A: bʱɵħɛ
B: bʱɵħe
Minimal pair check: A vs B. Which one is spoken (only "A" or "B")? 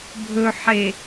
B